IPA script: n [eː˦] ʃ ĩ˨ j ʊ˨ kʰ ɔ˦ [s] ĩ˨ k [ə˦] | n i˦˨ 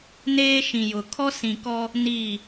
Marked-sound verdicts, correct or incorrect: correct, correct, incorrect

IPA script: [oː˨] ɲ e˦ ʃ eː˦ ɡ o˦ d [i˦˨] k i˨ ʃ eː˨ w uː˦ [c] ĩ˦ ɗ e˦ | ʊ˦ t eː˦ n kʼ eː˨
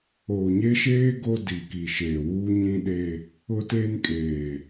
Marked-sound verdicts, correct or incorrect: correct, incorrect, incorrect

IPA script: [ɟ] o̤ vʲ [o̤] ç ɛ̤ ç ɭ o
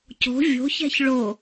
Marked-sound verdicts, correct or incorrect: incorrect, correct

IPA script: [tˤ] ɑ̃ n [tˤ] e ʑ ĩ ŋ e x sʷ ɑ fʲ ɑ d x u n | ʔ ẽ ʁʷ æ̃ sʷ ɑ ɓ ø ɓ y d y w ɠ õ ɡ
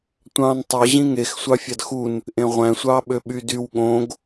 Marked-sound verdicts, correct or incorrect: incorrect, correct

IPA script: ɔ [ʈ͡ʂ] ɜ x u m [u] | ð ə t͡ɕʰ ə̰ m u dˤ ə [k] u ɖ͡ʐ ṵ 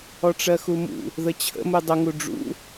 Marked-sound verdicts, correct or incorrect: correct, incorrect, incorrect

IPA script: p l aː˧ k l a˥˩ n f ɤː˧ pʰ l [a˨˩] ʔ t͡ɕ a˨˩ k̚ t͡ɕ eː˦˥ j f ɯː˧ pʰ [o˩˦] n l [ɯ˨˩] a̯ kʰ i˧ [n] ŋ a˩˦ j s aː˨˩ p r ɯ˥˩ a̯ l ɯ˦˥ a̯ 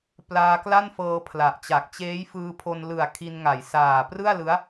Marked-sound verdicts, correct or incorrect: correct, incorrect, correct, correct

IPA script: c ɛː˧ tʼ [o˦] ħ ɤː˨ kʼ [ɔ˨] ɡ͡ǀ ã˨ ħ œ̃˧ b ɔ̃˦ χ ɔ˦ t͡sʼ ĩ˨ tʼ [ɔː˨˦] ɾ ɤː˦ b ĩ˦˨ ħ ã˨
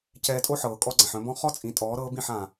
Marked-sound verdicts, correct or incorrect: correct, incorrect, correct

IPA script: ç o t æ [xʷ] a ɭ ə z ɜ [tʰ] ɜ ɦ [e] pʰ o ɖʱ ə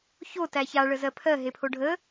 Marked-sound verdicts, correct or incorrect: incorrect, incorrect, correct

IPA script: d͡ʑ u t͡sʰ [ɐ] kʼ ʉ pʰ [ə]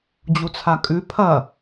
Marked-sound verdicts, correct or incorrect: incorrect, incorrect

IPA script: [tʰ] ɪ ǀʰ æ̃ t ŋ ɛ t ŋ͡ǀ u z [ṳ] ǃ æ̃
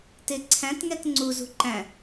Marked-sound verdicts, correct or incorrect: incorrect, correct

